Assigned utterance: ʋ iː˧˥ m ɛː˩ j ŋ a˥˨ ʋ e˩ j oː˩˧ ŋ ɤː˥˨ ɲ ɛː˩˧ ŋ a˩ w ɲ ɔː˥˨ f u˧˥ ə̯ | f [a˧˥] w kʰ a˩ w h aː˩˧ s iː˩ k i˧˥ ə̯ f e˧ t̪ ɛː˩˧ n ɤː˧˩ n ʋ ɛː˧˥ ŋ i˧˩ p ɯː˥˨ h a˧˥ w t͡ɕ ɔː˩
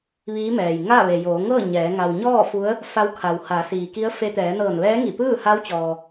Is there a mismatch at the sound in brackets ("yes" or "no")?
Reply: no